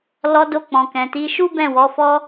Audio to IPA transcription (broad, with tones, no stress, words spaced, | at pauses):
lɔ˧ do˧k͡pɔ̃˨kɛ̃˨ ti˨˦ ʃu˦bɛ̃˦˨wɔ˨˦ fɔ˧